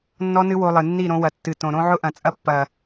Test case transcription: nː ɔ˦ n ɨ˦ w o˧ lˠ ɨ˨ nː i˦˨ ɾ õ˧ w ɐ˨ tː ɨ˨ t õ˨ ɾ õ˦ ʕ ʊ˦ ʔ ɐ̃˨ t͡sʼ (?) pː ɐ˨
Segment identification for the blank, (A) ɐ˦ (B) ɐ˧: A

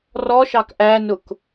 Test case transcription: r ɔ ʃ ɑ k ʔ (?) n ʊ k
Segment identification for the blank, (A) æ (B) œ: A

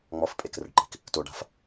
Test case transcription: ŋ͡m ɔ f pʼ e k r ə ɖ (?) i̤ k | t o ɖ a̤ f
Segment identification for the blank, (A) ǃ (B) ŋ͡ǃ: A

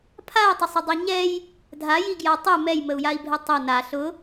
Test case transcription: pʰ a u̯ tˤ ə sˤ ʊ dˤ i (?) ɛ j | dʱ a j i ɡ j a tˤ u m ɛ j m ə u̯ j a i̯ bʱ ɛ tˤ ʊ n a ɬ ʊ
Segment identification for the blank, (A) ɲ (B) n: A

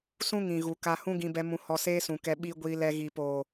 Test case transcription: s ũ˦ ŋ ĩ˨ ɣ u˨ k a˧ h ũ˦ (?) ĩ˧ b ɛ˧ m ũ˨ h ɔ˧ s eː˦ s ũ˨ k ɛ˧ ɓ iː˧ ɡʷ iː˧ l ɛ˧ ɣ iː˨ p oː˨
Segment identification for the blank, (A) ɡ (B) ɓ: A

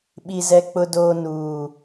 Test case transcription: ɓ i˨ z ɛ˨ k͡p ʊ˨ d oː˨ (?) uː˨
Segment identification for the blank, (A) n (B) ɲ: A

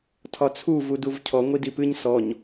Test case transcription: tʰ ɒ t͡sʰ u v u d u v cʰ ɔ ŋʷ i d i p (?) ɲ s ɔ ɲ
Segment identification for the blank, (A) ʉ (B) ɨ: B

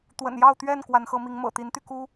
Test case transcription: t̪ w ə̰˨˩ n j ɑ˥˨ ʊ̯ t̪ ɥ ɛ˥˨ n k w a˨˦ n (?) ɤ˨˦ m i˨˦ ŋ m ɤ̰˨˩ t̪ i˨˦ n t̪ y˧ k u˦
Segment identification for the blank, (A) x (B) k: A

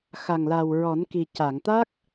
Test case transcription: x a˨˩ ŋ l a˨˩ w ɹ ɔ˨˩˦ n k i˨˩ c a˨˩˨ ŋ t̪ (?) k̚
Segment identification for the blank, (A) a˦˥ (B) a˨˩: A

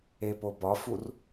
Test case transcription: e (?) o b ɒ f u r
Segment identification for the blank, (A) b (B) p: B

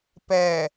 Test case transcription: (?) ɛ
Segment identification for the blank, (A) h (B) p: B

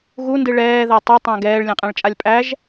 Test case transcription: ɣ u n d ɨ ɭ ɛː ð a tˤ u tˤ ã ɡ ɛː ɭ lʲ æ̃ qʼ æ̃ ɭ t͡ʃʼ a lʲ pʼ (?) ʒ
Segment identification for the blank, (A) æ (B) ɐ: A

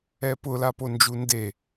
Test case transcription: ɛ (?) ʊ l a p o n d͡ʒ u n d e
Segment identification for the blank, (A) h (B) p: B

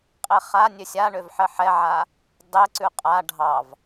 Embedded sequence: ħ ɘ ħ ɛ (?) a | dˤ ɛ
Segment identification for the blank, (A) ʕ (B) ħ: A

